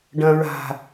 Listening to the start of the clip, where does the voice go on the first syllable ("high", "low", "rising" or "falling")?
low